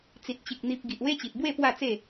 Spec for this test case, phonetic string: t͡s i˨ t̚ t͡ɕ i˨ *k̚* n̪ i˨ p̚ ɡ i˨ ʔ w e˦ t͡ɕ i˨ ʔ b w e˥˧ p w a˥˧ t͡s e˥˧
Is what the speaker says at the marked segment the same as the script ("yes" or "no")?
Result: yes